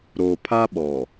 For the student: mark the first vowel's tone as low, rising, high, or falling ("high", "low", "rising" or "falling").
low